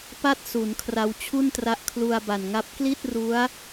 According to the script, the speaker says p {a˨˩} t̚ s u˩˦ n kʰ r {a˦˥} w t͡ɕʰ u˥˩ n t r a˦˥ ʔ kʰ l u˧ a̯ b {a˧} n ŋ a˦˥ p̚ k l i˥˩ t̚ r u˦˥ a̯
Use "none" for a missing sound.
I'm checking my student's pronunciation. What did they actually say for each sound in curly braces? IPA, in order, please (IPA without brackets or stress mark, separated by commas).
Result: a˥˩, a˧, a˨˩